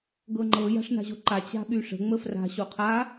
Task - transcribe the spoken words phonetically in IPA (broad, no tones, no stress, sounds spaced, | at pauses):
ɡ ɤ ŋ͡ǃ ɤ j a̤ ʂ n a̤ ʑ o ǃ a t͡ɕ a̤ ɓ y ʂ ə̤ ŋ͡m ə f r a̤ ɕ o qʰ a